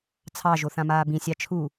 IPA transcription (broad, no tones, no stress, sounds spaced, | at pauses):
t͡sʰ ɑ ʒ o θ ã m aː b ĩ sʲ ɑ t͡ʃʰ u